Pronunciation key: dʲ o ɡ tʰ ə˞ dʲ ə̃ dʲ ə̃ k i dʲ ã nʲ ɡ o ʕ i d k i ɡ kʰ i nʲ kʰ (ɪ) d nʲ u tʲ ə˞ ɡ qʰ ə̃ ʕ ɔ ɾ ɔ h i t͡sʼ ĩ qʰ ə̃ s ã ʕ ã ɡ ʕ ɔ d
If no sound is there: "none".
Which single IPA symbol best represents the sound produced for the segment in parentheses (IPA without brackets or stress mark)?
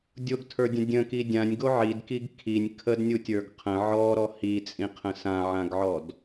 ə